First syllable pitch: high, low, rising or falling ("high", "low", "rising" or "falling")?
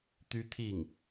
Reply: high